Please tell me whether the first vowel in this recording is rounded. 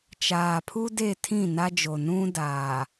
no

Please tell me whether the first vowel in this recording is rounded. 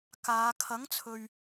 no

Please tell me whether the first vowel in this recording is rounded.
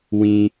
no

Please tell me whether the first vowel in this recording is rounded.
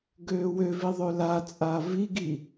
yes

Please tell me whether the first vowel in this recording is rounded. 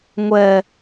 no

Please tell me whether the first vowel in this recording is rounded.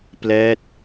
no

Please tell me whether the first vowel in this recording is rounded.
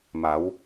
no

